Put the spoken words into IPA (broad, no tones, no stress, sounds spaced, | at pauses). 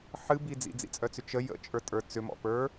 ħ ɨ b i d͡z ḭ d͡z ḭ t͡sʼ œ t͡s ʏ t͡ʃ ə j ə̰ t͡ʃʼ ə˞ tʼ ə˞ t͡s ʏ m ɔ̰ p ə˞